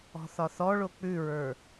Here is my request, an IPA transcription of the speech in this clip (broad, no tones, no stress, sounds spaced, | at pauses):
ɔ̤ θ ɒ θ ɔ ɭ o k͡p ʉ ɹ ə˞